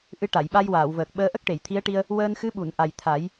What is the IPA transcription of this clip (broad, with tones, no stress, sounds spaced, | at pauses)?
ʔ ɨ˧ ʈ a˨˩˨ j ɓ a˧ j w aː˨˩˨ w v əː˨˩ k̚ ɓ əː˧˥ ʔ ə˦˥ k̚ ʈ e˨˩˨ j t̪ʰ i˧˥ ə̯ ʈ i˧ ə̯ | w əː˧ n x ɨ˧˥ ɓ u˨˩˨ n ʔ a˨˩ j t̪ʰ a˨˩˦ j